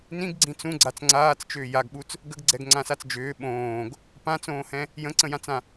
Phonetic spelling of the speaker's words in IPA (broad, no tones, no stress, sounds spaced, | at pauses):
n ĩ ɡ ɡ͡ǀ ĩ t͡s ũ ɡ͡ǀ a t͡s ŋ͡ǀ aː t͡s t͡ʃ ʏː j a ɡ ɓ u t͡s | ɡ ə ɡ ɡ͡ǀ ɛ ɡ ŋ͡ǀ ã s a t͡s d͡ʒ ʏː ɓ õː ɡ | p ã t͡s õː h ɛ̃ | j ə̃ ǀ ə̃ j ã t͡s ã